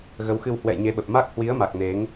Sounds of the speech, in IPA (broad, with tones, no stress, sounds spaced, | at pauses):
ɣ ə˨˦ w x ɨ˧ w h w ɛ̰˧˨ j ɲ e˨˦ ɓ ə˨˩ p̚ m a˦˥ k̚ h w i˨˦ ə̯ m a˨˩ k̚ n e˨˦ ŋ